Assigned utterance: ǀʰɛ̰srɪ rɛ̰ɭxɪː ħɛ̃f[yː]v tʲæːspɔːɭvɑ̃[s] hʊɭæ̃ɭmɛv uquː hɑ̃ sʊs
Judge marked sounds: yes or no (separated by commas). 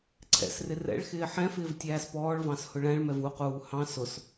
no, yes